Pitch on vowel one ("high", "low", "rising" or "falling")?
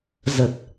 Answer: low